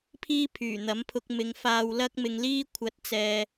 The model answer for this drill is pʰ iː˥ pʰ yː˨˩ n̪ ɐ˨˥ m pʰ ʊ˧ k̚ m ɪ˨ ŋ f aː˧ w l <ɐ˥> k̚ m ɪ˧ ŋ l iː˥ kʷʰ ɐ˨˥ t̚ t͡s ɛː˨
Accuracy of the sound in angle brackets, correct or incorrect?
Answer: correct